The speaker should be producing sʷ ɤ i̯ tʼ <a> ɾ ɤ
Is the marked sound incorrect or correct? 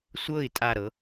correct